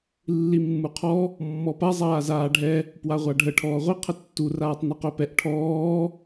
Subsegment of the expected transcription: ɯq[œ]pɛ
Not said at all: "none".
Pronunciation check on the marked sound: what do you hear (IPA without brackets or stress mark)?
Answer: œ